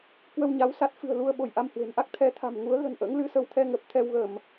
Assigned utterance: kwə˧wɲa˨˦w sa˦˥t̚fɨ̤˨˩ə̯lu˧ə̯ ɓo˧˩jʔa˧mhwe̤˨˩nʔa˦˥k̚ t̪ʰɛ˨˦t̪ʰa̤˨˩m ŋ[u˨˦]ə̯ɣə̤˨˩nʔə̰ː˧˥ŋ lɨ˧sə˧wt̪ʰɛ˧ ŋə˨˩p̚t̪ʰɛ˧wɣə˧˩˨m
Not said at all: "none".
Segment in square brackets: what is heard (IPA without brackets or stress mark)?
u˨˦